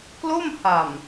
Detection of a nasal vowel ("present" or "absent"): absent